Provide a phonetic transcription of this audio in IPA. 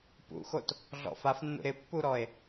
p ṵ x o t | ɮ ɔ̰ f a f nː ṵ ɾ ɪ pː u ɾ ɔ e̯

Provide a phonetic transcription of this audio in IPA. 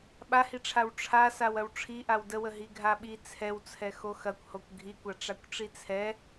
ɓ a h i ʈ͡ʂʰ a w ʈ͡ʂʰ a s a w ɐ w ʈ͡ʂʰ i ʔ a w d ə w ə ɦ i ɡʱ a ɓ i t͡sʰ ɛ w t͡sʰ ɛ x o x ɐ kʷ h o kʷ ɡʱ i kʷ a ʈ͡ʂ a kʷ ʈ͡ʂ i t͡sʰ ɛ

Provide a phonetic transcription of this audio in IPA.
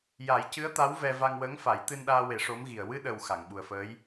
j a˨˩˦ j c ɨ˧˥ ə̯ t̪ a˧˥ w v ɛ˧ v a˧ ŋ w əː˧˥ ŋ f a˨˩˦ j t̪ ɨ˧ n ɗ aː˧ w e˨˩˦ ʂ o˧˥ m ɣ i˨˩ ə̯ w ɨ˧ ɗ ə˨˩ w x a˨˩˨ ŋ ɓ u˨˩ ə̯ f əː˧˥ j

